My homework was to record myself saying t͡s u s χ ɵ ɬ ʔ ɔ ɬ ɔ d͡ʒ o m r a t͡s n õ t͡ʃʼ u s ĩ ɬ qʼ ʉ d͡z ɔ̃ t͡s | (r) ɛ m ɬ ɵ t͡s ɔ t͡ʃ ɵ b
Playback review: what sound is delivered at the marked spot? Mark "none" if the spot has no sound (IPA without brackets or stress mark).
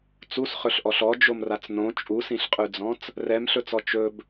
r